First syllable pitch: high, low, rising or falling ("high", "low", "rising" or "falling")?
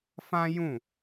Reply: high